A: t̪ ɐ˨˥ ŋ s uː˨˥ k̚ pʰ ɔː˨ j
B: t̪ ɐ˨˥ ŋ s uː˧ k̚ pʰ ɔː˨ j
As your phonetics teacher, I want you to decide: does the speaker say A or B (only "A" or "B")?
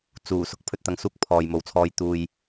B